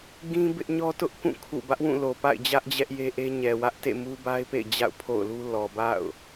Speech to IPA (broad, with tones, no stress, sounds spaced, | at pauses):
ɡ ĩ˦ b ɪ˦ ʔ ɲ ɔ˦ t ʊ˦ ʔ k ũ˦˨ kʰ ṵ˦˨ b ä˦ ʔ w ũ˦˨ l o˨ p a̰˦˨ ɪ̯ d͡ʑ ä˦ ʔ d͡ʑ ɛ˦ ʔ j e˦ ʔ e˦ ɲ ɛ˨ w ä˦ ʔ t ḛ˦˨ m u˦ b a˦ ɪ̯ p ḛ˦˨ ɪ̯ d͡ʑ a̰˦˨ ʊ̯ pʰ o̰˦˨ ʊ̯ l u˦ l ɔ˨ b a̰˦˨ ʊ̯